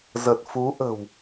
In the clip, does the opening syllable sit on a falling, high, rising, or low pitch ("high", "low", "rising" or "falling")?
low